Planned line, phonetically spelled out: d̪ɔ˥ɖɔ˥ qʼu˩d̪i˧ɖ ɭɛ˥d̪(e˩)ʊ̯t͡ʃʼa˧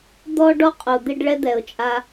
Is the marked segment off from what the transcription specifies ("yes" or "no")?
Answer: yes